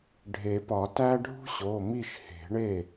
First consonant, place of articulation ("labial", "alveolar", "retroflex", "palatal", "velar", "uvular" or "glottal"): retroflex